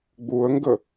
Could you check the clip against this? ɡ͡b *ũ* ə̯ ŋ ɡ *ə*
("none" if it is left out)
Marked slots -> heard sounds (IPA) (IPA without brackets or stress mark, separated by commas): u, ə